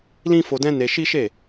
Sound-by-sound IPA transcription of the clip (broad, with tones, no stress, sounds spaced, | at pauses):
l ĩ˦ f o˧ d ɛ̃˦ n e˧ ʃ i˦ ʃ e˦˨